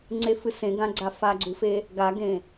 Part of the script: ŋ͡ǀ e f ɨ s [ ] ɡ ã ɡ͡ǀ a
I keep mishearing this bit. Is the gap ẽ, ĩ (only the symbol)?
ẽ